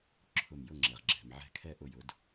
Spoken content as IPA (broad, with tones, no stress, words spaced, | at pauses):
ǁʰʊ˧˩mjʊ˥˨ŋ͡ǁɛ˩ʁ ɡ͡ǁɛ̤˩mʕɛ̤˦kʰɛ˥˨ ʔʊ˥˨jʊ˨˥d